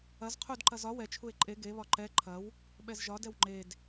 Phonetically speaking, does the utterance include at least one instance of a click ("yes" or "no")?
yes